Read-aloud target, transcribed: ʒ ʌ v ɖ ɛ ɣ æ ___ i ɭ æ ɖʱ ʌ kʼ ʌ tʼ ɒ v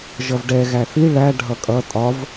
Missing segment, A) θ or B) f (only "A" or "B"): A